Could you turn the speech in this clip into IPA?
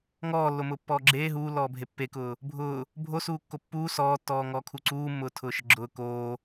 ŋ ɔː lː o m ʊː pː ɔː ɡ͡ǁ eː ɦ uː lː ɔː bʱ e pː e k ʊː | bʱ ʊː | bʱ o s uː kː o pː uː s ɔː tː ɔː ŋ ɔː kʰ u ǀ uː mː ʊː tʰ ʊː ʃ ə ɡ͡ǁ ʊː k oː

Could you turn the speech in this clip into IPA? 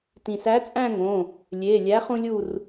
t ĩ˩ s æ˨˥ t͡sʼ æ̃˥˧ ŋ õ˩˧˩ | lʲ e˩˧˩ lʲ æ˨˥ χ ũ˧ lʲ u˧˩ r

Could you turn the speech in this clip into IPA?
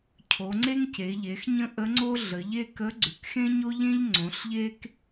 cʰ o˩˧ ŋ͡ǀ e˥ ŋ c e˩˧ ʎ e˩˧ x ɲ ə̃˥ ʔ ə˧˥ ŋ͡ǀ o˥ ɮ ə˩˧ ʎ e˥ k ə˧˥ ɡ͡ǀ ʉ˩˧ k x ẽ˥ ɲ o˥ ʎ ẽ˥ ʎ ŋ͡ǀ õ˩˧ ɬ ʎ e˥ k

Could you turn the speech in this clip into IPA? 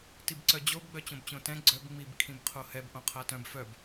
t i b ǀ œ d͡ʑ o b ɡ͡b œ t͡ɕ õ b t͡ɕ õ t ɛ̃ ɡ͡ǀ œ b ŋ͡m i b kʰ ĩ b qʰ o h ɛ b ʔ õ qʰ a t œ̃ b f œ b

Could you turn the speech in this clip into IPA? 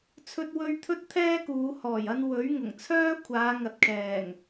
t͡sʰ ɵ˥ t̚ w ɵ˥ ɥ t̪ʰ ɵ˥ t̚ t̪ʰ ɛː˥ k uː˨˧ h ɔː˨˩ j ɐ˧ n w ɵ˨˥ ɥ ŋ ʊ˨˩ ŋ t͡sʰ œː˥ kʷʰ aː˨˧ ŋ ɐ˨ t̚ kʰ ɛː˨˩ ŋ

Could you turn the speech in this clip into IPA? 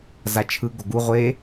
z a t͡ʃʰ ɯ ɡ o ɡ u ʁʷ e

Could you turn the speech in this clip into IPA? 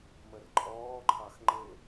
m ə r ǃʼ ɔː ǃʰ ɑ x ŋ͡ǃ ɪ

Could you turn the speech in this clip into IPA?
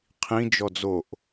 qʰ ĩ d͡ʒ ɔ d͡z o ʔ

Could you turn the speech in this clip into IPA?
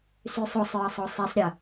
s y sˤ o sˤ ɹ ə sˤ o sˤ i sˤ ɾʲ ə

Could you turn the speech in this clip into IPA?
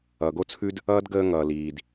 ʌː˩ ɡ o˥ t͡sʰ ʉ˥ d | ʌː˥ d ɡ əː˦ ŋ ʌː˩ l iː˩ d

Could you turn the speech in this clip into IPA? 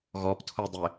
ɣ ɔ p tʰ o dˤ ɪ

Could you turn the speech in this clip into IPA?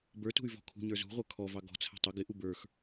b ə˞ t ṳ y̯ v ɔ̤ kʰ ṳ ɲ ə˞ z ṳ ʁʷ ə˞ kʰ ɔ v ɑ ɡ ɔ̤ t͡sʰ æ̤ tˤ ʊ ɡ ɪ ʔ u b ə˞ x

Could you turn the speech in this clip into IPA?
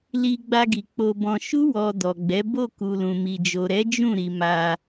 l i˧ ɡ͡b a˧ ɡ i˨ k͡p o˧ b ɔ̃˧ ʃ u˦ w ɔ˧ d ɔ˨ ɡ͡b ɛ˨˦ b o˦˨ k u˨ l ũ˨ m i˨ d͡ʒ o˨ ɾ ɛ˨˦ d͡ʒ ũ˦˨ ɾ i˨ m a˧

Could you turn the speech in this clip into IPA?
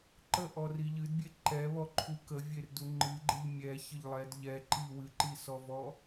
ǃ ə ʔ ɔ r i ʎ ɨ d bʲ e ǃ ɛ β ɔ ǃʰ u k ə vʲ e r d u ŋ͡ǃ ɨ ɡ͡ǃ ɨ ʎ mʲ ɛ ç ə ʎ lˠ ɛ d ʎ ɛ ǃ i w ɨ ǃ i s ɔ v ɔ

